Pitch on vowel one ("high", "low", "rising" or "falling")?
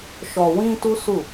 low